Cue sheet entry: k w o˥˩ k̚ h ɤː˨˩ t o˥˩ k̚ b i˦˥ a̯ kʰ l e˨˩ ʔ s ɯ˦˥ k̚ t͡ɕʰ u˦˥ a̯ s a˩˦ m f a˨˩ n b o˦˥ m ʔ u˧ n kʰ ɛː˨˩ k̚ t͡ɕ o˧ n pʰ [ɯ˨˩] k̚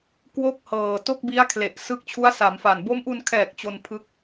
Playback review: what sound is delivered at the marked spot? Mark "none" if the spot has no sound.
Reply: ɯ˦˥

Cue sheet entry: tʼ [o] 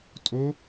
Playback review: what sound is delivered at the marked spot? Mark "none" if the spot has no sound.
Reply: o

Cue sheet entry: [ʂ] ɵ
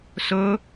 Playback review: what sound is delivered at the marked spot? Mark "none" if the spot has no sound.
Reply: s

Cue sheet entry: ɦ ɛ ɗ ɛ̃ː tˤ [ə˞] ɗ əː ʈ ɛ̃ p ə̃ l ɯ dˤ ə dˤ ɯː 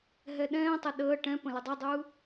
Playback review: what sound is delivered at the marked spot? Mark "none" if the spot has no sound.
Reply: ə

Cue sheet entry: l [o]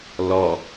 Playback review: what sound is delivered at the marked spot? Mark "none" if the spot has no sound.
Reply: ɔ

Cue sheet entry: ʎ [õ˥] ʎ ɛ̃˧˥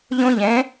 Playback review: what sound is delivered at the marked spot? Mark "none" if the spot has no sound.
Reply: õ˥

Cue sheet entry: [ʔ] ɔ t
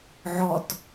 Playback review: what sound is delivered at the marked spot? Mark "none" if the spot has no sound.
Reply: ʕ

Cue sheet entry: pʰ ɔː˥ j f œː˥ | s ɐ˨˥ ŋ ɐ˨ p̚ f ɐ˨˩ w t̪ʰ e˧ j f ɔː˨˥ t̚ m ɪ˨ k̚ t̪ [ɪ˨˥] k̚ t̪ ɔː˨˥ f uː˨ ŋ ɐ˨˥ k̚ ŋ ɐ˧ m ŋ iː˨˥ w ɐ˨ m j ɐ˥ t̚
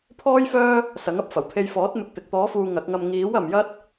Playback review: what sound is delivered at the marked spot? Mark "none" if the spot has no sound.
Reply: ɪ˨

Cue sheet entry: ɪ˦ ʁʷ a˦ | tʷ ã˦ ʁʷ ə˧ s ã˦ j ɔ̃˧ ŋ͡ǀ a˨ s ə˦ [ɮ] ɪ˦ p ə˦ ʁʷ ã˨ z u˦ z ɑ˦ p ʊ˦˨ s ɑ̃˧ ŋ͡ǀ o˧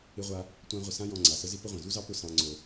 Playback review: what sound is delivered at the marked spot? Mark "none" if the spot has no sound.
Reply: z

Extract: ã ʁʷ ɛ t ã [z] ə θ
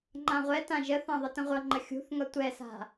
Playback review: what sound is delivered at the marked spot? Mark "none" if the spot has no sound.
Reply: ʒ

